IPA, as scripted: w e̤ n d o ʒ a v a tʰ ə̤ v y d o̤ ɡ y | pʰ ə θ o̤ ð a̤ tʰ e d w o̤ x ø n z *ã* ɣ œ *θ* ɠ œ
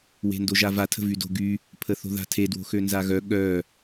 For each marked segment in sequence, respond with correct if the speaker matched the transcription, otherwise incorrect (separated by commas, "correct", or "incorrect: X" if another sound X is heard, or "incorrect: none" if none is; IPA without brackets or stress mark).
incorrect: a, incorrect: none